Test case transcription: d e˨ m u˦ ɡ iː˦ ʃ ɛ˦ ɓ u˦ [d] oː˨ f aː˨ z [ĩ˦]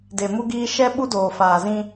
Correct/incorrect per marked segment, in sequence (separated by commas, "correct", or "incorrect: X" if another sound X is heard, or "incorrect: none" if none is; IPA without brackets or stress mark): correct, correct